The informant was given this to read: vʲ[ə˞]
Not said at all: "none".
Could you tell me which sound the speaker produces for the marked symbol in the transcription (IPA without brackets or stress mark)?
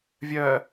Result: ɜ